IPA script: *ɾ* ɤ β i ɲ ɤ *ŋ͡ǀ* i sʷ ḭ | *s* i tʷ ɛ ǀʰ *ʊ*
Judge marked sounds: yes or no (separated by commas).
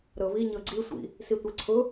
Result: yes, no, yes, yes